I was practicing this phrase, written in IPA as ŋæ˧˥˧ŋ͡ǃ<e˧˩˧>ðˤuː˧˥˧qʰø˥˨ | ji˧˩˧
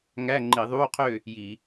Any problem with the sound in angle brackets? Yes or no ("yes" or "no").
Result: yes